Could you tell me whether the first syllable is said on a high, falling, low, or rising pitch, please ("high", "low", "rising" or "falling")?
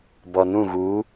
low